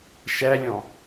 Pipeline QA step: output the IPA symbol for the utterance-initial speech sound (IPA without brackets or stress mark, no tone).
ʃ